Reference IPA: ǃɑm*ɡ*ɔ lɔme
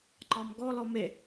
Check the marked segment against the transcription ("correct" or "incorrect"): correct